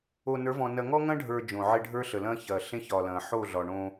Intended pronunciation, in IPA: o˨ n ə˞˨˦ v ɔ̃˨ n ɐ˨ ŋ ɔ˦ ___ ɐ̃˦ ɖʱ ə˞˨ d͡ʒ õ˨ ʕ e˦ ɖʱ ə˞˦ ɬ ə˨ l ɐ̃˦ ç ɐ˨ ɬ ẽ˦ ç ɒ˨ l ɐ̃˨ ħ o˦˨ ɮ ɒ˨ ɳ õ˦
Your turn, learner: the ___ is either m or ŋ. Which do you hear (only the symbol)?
ŋ